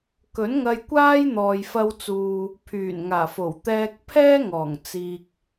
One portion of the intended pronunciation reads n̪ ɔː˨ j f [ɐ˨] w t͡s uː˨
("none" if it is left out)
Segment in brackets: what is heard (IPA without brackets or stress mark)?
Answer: ɐ˧